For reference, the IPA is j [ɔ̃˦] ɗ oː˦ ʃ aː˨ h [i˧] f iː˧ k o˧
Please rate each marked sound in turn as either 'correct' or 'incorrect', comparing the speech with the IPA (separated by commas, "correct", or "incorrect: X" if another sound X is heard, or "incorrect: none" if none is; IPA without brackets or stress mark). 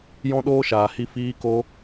correct, correct